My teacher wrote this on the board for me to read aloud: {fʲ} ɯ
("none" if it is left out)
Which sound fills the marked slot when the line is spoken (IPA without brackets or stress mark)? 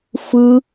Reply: f